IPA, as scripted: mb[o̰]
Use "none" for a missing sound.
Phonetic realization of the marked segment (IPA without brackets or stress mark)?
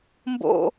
o̰